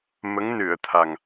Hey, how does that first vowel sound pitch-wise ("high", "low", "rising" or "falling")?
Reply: rising